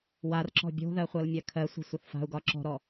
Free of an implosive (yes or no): yes